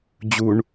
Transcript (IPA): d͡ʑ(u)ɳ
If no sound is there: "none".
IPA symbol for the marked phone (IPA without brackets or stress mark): u